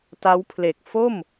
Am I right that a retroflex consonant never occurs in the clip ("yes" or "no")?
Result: yes